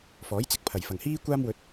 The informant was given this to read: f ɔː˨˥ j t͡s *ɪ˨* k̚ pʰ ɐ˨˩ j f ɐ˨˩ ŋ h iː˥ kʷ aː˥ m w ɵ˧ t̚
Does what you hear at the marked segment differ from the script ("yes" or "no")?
no